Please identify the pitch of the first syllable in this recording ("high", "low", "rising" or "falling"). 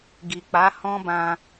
low